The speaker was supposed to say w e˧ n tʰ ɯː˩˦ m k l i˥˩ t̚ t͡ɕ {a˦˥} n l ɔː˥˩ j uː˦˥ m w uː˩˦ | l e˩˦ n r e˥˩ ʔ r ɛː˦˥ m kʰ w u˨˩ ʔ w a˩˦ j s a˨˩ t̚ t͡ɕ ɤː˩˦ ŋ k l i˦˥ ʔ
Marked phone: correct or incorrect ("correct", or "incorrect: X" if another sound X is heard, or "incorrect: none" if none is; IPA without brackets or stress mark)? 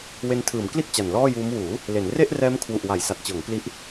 incorrect: a˨˩